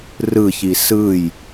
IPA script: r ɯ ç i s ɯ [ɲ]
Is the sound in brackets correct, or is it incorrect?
incorrect